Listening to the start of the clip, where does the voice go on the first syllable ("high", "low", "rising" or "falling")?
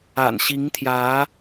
low